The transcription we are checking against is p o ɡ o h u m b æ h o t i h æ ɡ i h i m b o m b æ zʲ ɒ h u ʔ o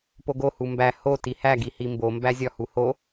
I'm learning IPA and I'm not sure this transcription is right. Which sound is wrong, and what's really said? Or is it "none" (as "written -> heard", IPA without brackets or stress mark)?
ʔ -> h